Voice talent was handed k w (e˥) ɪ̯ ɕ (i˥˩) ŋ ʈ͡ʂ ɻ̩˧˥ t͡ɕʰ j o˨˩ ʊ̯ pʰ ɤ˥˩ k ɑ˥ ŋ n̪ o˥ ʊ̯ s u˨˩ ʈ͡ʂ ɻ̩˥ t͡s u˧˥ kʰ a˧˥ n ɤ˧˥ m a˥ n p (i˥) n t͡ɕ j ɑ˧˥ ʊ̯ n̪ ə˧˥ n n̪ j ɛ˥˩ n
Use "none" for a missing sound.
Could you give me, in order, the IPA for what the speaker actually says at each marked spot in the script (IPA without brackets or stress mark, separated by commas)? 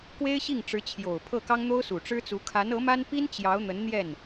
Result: e˥, i˥˩, i˥